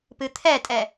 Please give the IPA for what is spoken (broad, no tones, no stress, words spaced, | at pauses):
pɨt̪ʰɛtʼɛ